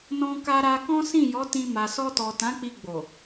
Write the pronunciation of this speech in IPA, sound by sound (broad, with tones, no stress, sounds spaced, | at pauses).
n ɔ̃˧ k a˧ ɾ a˧ k ɔ̃˦ s ĩ˦˨ j ɔ˨˦ t ĩ˧ m a˨ s ɔ˧ t ɔ˨ t ã˨˦ k͡p i˧ ɡ͡b o˨